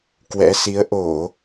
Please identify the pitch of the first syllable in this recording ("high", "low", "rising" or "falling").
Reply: rising